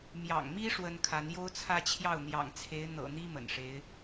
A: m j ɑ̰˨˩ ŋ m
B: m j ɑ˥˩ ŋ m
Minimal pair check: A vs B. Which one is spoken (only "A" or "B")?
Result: A